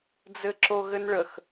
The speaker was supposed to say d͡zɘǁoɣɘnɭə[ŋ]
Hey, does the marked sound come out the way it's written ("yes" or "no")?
no